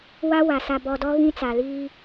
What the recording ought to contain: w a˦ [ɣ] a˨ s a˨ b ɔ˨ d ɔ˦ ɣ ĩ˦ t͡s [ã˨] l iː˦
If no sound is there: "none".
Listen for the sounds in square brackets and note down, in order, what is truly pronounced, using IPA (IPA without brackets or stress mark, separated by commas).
w, a˨